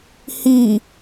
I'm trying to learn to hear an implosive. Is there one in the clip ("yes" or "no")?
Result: no